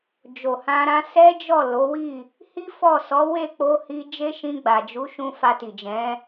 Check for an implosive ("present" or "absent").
absent